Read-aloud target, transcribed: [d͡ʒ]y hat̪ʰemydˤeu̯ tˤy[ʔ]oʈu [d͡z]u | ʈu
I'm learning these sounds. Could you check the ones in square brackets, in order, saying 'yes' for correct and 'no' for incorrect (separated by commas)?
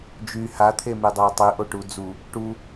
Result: yes, yes, yes